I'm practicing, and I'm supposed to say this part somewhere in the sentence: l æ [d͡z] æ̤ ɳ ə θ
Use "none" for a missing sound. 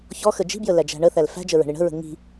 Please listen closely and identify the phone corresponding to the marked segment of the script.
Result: d͡ʒ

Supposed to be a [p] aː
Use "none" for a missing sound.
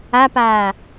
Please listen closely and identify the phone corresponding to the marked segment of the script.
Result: p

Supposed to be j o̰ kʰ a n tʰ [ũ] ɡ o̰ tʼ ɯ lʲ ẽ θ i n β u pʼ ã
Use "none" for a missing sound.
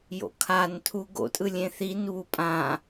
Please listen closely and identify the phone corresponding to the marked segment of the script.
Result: u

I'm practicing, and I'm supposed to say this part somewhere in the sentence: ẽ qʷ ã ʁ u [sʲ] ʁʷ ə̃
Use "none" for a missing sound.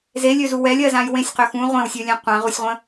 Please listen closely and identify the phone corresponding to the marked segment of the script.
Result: sʲ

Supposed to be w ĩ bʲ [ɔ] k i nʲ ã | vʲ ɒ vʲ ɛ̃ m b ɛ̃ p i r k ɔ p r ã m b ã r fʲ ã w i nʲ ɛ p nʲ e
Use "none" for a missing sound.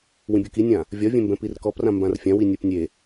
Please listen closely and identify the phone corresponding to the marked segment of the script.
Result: o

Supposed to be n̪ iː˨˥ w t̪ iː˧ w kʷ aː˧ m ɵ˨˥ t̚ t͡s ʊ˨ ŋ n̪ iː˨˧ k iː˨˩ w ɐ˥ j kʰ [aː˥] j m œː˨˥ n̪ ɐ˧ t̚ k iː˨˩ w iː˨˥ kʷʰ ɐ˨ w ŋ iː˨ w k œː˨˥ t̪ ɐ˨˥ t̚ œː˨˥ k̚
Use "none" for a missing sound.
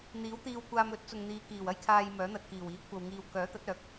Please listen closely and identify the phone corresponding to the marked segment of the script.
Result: aː˧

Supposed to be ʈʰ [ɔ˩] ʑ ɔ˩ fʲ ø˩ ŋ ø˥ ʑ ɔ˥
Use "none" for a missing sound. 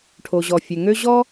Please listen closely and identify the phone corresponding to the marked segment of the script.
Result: o˩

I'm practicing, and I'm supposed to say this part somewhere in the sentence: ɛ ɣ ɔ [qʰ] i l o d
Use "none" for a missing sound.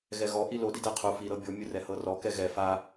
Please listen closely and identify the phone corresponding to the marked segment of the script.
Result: ʔ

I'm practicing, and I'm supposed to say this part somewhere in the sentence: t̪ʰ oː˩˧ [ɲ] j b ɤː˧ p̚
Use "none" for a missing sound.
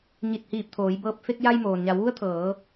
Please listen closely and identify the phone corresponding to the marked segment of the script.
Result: none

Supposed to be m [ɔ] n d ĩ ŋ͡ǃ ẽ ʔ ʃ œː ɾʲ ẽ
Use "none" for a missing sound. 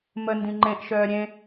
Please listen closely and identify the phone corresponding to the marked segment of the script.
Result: ə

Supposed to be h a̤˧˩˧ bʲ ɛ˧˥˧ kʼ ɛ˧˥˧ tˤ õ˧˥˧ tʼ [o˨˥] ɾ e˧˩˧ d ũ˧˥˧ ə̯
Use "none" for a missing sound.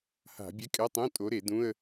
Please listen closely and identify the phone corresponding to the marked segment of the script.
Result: o˨˥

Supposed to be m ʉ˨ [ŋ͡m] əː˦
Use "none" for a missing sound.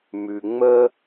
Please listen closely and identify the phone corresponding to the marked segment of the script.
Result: ŋ͡m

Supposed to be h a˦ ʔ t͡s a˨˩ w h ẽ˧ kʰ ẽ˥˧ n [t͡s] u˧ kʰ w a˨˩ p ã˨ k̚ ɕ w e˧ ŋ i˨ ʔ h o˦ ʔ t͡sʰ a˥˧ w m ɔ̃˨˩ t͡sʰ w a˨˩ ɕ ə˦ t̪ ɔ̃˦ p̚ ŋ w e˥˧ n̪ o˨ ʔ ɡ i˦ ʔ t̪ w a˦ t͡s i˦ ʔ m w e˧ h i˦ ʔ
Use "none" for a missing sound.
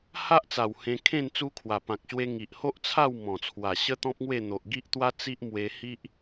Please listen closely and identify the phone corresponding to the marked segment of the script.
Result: t͡s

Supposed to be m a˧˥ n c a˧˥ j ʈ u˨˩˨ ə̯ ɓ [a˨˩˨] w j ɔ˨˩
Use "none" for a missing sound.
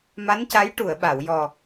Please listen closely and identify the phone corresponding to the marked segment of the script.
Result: a˨˩˨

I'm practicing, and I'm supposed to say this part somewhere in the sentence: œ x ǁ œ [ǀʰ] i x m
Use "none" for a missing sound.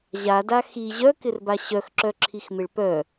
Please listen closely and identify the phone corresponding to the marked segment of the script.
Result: ǁʰ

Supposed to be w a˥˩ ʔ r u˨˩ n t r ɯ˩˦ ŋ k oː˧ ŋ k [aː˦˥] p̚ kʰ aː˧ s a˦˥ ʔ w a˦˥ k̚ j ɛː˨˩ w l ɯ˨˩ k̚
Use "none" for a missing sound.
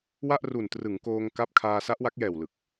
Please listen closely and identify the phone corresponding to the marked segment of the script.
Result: a˦˥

